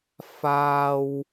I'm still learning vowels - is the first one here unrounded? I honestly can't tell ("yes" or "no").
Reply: yes